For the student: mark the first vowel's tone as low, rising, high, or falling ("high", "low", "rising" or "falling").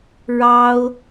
high